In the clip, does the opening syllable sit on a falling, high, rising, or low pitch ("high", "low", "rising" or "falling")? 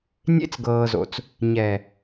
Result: high